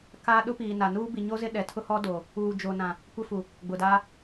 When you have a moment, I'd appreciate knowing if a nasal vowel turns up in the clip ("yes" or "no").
yes